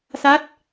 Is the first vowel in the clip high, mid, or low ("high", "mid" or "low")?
low